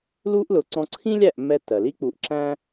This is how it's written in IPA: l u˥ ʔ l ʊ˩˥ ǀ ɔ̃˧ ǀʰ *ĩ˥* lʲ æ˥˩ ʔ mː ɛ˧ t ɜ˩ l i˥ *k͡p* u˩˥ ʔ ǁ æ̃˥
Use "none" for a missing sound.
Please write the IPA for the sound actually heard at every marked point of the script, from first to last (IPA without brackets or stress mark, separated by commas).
ĩ˥, k͡p